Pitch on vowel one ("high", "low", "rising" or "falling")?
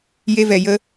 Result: high